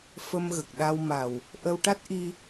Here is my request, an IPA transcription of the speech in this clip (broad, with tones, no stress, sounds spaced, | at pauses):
f ə˧ m ɣ ə˨˩ k̚ ɗ a˧ w m a˨˩ w | ʔ ə˧ w ʈ a˦˥ t̚ ʔ i˧